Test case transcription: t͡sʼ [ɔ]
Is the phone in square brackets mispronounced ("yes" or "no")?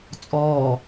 yes